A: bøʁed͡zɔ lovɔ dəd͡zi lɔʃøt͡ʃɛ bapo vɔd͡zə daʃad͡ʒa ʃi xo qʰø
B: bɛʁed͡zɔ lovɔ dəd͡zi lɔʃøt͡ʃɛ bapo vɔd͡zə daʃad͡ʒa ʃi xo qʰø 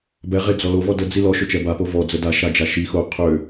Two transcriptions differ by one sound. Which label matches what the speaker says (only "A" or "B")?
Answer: B